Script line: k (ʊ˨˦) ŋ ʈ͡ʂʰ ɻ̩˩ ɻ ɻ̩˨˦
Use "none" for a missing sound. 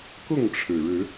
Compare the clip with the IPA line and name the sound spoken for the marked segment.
ʊ˥˨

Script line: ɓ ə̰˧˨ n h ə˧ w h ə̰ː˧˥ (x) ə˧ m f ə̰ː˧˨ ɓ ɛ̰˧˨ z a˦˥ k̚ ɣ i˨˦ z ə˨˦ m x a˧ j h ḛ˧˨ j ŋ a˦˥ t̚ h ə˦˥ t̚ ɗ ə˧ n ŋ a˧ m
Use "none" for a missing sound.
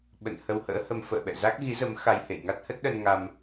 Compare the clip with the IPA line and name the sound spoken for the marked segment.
h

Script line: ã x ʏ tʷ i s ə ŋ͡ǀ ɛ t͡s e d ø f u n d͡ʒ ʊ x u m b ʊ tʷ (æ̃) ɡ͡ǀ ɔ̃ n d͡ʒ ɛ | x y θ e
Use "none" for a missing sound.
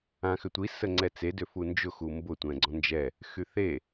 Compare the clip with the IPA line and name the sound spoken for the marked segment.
ɛ̃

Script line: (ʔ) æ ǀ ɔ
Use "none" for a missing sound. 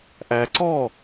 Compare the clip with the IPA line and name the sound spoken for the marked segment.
ʔ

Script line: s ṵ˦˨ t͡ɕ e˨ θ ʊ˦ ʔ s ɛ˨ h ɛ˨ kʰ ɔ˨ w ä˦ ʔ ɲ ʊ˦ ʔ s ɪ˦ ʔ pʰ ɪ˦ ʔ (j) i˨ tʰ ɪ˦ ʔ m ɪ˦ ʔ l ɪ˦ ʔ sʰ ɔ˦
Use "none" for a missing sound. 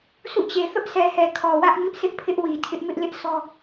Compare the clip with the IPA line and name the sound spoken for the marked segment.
w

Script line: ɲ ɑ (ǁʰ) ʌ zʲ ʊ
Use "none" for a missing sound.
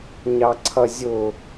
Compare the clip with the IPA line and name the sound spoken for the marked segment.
ǀʰ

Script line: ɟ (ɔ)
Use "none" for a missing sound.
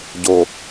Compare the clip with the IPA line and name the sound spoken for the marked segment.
o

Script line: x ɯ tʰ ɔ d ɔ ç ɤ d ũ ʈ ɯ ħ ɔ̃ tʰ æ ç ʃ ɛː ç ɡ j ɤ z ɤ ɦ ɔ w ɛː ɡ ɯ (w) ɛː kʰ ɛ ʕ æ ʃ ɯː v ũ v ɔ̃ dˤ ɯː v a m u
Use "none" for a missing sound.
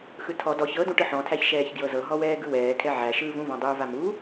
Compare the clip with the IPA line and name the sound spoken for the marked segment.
w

